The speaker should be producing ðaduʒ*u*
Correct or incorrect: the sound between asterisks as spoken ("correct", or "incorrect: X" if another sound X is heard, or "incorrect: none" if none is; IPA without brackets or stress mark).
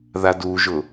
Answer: incorrect: ʊ